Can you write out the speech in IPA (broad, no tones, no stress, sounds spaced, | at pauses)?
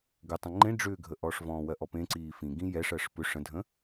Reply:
ɡ ʏ tˤ ə̃ ŋ͡ǃ ẽ ɖ͡ʐ ʏː ɡʱ ə ʔ ɔː ʂ v ɔ̃ː w ɜ ʔ ɔ p ẽ ǀ iː f ĩ ɡ ĩ j ɛ ʂ ɜ ʂ p ʏ ʂ ə̃ dʱ ə̃